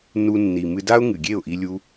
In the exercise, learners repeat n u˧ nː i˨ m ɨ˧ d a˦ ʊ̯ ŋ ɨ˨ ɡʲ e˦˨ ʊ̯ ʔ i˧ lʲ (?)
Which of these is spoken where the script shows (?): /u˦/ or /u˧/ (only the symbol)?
u˦